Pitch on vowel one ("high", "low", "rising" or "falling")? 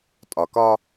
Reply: low